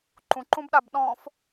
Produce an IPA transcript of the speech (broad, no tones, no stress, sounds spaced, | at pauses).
ǃ ũ ǃ ũ b ɗ a b ɗ ɔ̃ f